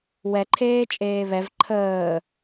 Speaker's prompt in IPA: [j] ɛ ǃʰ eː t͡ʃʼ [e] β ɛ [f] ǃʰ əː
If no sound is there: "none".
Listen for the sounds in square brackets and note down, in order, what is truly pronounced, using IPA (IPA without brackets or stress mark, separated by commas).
w, eː, v